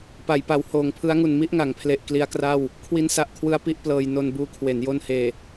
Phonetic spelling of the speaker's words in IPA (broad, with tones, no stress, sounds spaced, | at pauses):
p a˩˦ j p a˩˦ w h oː˩˦ ŋ pʰ ɯ˦˥ a̯ ŋ u˨˩ n m i˥˩ ʔ ŋ a˩˦ ŋ pʰ l e˨˩ ʔ k l i˦˥ a̯ k r a˥˩ w | kʰ w i˦˥ n s a˨˩ ʔ kʰ w ɯ˦˥ a̯ p i˦˥ ʔ p l ɤː˧ j n o˧ n b uː˧ kʰ w e˩˦ n j o˧ n h eː˨˩